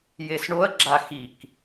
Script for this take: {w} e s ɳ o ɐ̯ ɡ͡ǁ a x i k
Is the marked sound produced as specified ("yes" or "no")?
no